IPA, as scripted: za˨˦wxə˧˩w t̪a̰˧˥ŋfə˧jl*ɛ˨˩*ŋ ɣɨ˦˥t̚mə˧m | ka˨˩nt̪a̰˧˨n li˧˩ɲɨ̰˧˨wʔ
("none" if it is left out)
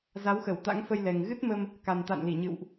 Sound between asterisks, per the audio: ɛ˨˩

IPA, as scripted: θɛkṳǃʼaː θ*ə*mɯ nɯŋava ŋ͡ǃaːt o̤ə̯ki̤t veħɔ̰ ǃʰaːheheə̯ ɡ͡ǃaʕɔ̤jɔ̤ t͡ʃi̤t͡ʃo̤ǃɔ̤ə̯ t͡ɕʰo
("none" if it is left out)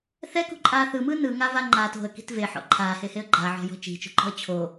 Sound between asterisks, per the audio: ɯ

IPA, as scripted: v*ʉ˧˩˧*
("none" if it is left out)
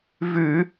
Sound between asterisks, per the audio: ʉ˧˩˧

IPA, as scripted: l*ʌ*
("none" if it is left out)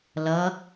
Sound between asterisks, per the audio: ʌ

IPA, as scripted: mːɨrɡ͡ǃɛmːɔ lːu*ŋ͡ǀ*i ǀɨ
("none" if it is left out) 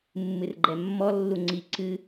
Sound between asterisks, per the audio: ŋ͡ǀ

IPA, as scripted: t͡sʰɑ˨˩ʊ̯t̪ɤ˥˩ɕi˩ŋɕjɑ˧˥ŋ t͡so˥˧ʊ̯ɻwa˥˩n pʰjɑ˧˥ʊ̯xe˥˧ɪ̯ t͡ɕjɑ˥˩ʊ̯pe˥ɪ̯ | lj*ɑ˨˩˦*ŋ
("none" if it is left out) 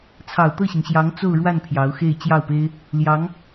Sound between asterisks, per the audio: ɑ˧˥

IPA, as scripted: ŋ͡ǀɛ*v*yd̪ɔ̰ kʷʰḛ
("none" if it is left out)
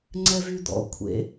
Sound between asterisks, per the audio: v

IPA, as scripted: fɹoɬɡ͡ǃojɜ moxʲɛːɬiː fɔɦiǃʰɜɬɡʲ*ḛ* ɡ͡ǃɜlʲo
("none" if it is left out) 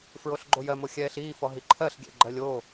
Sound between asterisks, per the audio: ɛ̰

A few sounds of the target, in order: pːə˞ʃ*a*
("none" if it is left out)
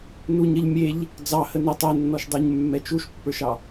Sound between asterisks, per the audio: ɑ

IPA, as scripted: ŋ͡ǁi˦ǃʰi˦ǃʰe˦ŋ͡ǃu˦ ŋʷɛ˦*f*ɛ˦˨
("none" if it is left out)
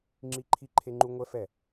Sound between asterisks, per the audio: f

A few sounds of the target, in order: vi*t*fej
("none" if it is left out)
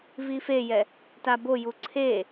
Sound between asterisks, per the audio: none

